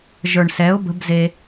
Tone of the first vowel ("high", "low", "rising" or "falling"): low